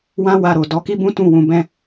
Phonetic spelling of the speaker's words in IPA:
wã˦ wa˧ɾo˨ dɔ˨˦ki˦bũ˦ tũ˦˨wũ˧bɛ̃˦

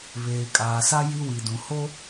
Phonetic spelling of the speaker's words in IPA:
βeː˨kʼaː˨sa˦ ji˦wi˨dũ˨ ho˦

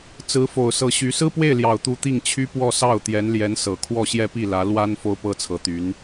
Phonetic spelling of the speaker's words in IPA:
t͡sɹ̩˧˥fo˨˩ʊ̯ sɤ˧˥ɕy˧˥ sɹ̩˥pwe˥˩ɪ̯ljɑ˨˩ʊ̯t̪u˧˥ t̪i˥˩ŋ t͡ɕʰy˥pwɔ˥˧ sɑ˥˩ʊ̯t̪jɛ˧˥nljɛ˧˥n sɤ˨˩ kʰwɔ˥˧ɕjɛ˥˧pi˥˩lä˧˥ lwa˥n fo˥ʊ̯pɤ˥t͡sʰɤ˧˥t̪y˧˥n

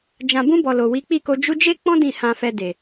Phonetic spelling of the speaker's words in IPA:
d͡ʒã˨bũ˧bɔ˨ lo˨wi˨˦k͡pi˦˨ko˧ d͡ʒu˧d͡ʒe˦k͡pɔ̃˦ dĩ˦˨ hã˧fɛ˧de˨

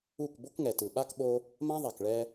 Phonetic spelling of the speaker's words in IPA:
u˦˨k bo˦kŋɛ˨tɯ˨ ɓa˦kɓo˧ | mã˦ðˤa˨kɭɛ˧

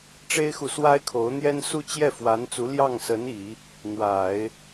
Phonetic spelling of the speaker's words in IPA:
ʈ͡ʂe˥ɪ̯xu˨swa˥ɪ̯ kʰo˧˥ʊ̯n̪jɛ˥n su˥˧t͡ɕjɛ˥˩fwa˧˥nt͡su˧˥ ljɑ˥˩ŋsə˧˥ni˨˩˦ | n̪wa˨˩˦ɪ̯

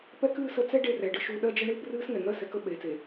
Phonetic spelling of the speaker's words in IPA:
pɛ˦kɨː˦˨sə˦ t͡sɛ˦ ɖe˦rɛ˨ ɖɨ˦ʃu˦ ɗɜ˦d͡ʒə˦ ɳɨː˦brɨː˦sŋɛ˨ŋɜ˦ sɛ˨kə˦ ɓeː˨t͡se˨

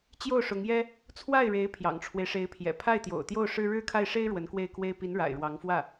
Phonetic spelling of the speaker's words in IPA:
t͡ɕjo˥˩ʊ̯ʂʊ˧˥ŋjɛ˥ | t͡sʰwa˥˩ɪ̯ɻe˧˥ɪ̯ pʰjɑ̰˨˩ŋʈ͡ʂʰwe˦ɪ̯ʂe˧˥ɪ̯pʰjɛ̰˨˩ pʰa˥˩ɪ̯t̪jo̰˨˩ʊ̯ t̪jo˥˩ʊ̯ʂɻ̩˥ ɻɻ̩˥˧kʰa˥˩ɪ̯ʂe˥ɪ̯ ɻwə˧˥nkwe˥˩ɪ̯kwe˥ɪ̯ pi˧˥n ɻa̰˨˩ɪ̯ɻwɑ˧˥ŋfwä˥˩

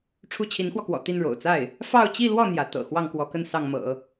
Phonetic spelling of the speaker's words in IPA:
ʈ͡ʂʰu˥˩t͡ɕʰi˧˥nxwɔ˧kwɔ̰˨˩ t̪i˥˩nɻo̰˨˩ʊ̯t͡sa˥˩ɪ̯ | fɑ˥˧ʊ̯t͡ɕi˥˧lwɔ˥˩ n̪jä˧˥ t̪ɤ̰˨˩ xwɑ˥˩ŋkwɔ˧˥kə˥˧n sɑ˥˩ŋmɤ̰˨˩˦

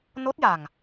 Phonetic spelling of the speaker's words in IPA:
no˦˥t̚ja˨˩ŋ

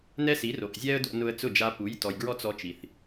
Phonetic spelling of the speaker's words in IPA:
nɛ˥si˩˥ro˩ʔzʲɛ˥ə̯ do̰˧nʊ˧ə̯ t͡sʊ˥˩d͡ʒa˧pu˩˥jtɔ˩j ɡɹɔ˥t͡sɔ˧t͡ʃi˩θ

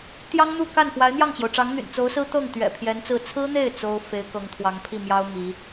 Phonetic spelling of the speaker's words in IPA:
t̪jɑ˥ŋn̪u˥˧ ka˥˩nfwa˧˥ɪ̯ n̪jɑ˥˩ŋt͡ɕjo˩ʊ̯ʈ͡ʂɑ˧˥ŋ n̪y̰˨˩nt͡so˧˥ʊ̯sɹ̩˥ t̪ɤ˥˩ŋ t̪ɥɛ̰˨˩ pʰjɛ˧˥nt͡sɹ̩˥˩ t͡sʰɹ̩˥n̪e˥˩ɪ̯ t͡so˥ʊ̯ fe˧˥ɪ̯kɤ˧˥ŋt̪ʰwɑ˧˥ŋ pʰi˥˩mjɑ˥ʊ̯ mi˧˥

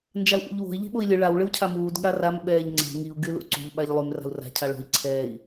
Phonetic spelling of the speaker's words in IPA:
nd͡ʒau̯ʔṵʎwo̤i̯ ʎi̤ɓoi̯lʲɨ ɭaw ɭɨwcʰamuːd ɠaram ɓɛːʎŋ͡ǀɛ̤ ŋiu̯ ɡylṵǀṳʎ ɓaʎlˠym ra̤u̯ra̤ cʰaɭo̤i̯ ǀʰɛːi̯

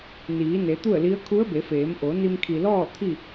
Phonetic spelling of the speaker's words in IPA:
niː˩˧ne˩˧ t̪u˥˨ə̯li˧˥ə̯ kʰu˧˥ə̯be˩˧feː˩˧mʔo˩˧ ni˧mkʰi˩lɔː˥˨ t̪ʰi˥˨

